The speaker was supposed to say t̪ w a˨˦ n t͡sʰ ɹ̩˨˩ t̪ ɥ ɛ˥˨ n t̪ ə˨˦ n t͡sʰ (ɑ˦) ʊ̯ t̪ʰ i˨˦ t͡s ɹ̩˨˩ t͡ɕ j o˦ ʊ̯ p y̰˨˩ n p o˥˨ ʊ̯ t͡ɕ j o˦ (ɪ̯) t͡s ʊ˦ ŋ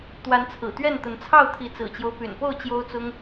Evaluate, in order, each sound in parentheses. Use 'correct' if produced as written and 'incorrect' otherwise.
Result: incorrect, incorrect

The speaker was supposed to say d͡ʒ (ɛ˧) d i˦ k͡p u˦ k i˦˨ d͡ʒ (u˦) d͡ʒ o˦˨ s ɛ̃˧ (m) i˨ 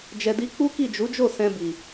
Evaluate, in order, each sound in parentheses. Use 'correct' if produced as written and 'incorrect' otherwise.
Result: correct, incorrect, incorrect

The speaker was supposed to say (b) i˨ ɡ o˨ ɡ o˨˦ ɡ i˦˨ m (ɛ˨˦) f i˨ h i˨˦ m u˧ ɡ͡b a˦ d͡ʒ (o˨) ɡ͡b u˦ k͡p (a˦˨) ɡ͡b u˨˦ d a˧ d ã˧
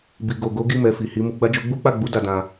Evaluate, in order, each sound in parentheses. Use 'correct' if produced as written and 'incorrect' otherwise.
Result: correct, incorrect, incorrect, correct

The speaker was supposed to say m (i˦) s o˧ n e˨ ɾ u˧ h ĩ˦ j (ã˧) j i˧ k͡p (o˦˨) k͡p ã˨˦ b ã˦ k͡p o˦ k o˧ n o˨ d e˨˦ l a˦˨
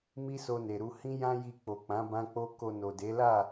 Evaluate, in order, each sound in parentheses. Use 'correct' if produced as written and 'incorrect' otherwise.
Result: correct, incorrect, incorrect

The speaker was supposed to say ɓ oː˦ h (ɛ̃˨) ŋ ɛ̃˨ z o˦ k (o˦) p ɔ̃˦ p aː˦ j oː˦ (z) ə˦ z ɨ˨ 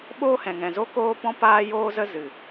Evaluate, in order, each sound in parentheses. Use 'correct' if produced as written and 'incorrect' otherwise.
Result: correct, incorrect, correct

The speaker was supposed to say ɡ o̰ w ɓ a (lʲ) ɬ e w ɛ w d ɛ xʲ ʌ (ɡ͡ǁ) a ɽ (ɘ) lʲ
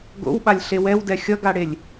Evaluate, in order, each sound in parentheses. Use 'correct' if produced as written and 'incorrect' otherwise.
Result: correct, incorrect, incorrect

